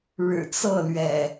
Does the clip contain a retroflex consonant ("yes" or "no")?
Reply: yes